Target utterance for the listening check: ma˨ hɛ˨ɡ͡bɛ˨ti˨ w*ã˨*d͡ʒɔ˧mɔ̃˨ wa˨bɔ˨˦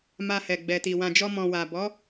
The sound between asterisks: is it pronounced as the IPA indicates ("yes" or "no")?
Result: yes